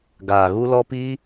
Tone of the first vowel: low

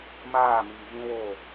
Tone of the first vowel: falling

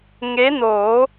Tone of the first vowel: rising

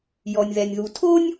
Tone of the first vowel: low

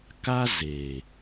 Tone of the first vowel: high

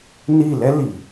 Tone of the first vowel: falling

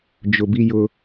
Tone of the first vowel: low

